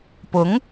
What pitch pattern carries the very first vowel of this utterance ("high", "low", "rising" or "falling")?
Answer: rising